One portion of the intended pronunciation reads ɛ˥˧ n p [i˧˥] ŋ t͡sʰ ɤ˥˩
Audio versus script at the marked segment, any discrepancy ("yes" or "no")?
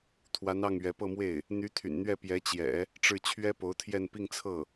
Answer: yes